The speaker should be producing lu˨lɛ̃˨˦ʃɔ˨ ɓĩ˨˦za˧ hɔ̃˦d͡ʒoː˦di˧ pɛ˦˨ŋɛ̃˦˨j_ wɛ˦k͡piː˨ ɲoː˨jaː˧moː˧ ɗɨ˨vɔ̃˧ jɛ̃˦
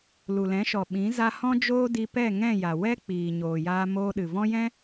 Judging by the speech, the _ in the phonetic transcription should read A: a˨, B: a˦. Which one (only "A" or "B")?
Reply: A